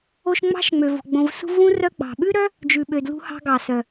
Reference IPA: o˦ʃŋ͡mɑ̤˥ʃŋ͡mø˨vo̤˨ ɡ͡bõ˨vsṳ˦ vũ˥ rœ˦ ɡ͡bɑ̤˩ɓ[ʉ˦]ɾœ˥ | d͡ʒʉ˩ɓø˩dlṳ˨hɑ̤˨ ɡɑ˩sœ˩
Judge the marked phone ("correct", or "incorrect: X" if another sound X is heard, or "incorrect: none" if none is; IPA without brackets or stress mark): incorrect: ʉ˥